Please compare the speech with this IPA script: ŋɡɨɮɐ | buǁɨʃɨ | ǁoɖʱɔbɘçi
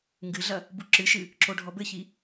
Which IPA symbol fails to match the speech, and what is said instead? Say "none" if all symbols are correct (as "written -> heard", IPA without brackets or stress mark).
none